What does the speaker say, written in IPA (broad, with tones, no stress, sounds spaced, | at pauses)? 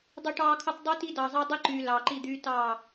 dˤ y˨ ʈ ɑː˨ kʰ ɯ˨ tˤ dˤ ø˦ t i˦ d ɑ˨ zˤ ɑ˦ dˤ i˦ ǃ yː˨ l ɑː˨ ǃ i˦˨ d̪ yː˦ t ɑː˦˨